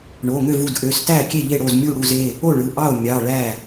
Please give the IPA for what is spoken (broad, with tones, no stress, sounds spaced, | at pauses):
ɳ o˩˧˩ ŋ ø˥˩ v u˩˧˩ d ʔ ø˩˧˩ s t æ˥˩ kʲ e˥˩ ʎ e˥˩ ɽ o˥˩ z mʲ u˥˩ ɽ u˥˩ z e˩˧˩ | o˥˩ ɭ ɯ˩˧˩ ʔ ɑ˥˩ o̯ mʲ ɑ˩˧˩ ɭ æ˥˩